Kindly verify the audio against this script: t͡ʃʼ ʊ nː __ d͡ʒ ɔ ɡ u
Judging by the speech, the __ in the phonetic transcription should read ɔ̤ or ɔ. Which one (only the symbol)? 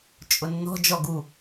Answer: ɔ̤